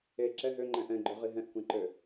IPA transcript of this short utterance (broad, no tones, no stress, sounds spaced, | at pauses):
e ǁ ɛ ɦ ø ŋ͡ǃ ɛ̃ ʔ ɛ̃ ɡ͡ǃ ø ʁ i ɦ ɛ̃ ʔ kʷ ɛ̃ ǃ ø